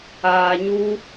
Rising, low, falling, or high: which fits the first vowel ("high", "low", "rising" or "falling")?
low